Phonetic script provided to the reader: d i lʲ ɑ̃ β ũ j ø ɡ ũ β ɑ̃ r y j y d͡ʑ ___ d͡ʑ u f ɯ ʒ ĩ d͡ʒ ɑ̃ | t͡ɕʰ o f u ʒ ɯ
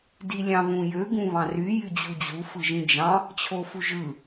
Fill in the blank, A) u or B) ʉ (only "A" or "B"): A